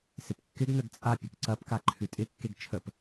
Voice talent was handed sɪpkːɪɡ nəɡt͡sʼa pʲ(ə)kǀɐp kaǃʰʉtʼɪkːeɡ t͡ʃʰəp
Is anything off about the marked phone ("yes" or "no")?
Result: no